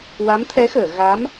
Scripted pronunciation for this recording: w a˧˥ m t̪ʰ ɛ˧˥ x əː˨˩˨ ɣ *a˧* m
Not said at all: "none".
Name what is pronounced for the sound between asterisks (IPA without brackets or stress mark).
a˧˥